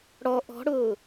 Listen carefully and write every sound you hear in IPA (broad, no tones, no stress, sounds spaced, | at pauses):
ɽ ɔ ʔ ɔ̤ ɽ ʊː